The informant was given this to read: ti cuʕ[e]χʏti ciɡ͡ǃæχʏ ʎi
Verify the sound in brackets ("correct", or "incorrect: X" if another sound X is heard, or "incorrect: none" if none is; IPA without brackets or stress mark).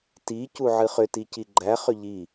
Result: incorrect: ɨ